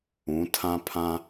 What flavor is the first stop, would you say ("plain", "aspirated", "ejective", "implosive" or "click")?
aspirated